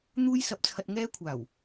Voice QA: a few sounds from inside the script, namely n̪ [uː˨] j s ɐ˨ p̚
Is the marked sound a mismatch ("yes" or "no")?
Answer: yes